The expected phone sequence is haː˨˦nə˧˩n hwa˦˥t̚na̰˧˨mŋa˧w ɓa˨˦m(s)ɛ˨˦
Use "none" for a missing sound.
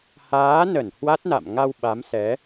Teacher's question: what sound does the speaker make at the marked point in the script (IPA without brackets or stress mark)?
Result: s